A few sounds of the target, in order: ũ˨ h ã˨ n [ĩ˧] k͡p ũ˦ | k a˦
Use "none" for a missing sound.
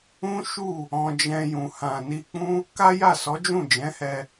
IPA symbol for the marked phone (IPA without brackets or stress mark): i˧